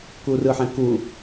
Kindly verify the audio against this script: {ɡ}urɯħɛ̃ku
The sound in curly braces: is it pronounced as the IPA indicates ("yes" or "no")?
no